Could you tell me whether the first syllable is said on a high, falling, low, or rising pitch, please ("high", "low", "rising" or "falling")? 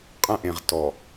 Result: high